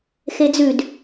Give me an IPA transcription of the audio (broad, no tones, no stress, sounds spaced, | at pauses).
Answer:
x e d͡z ʉ d